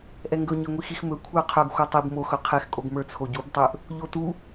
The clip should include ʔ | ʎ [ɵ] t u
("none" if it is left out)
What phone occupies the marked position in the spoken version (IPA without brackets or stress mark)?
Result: o